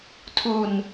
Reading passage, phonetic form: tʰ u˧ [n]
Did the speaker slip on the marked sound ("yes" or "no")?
no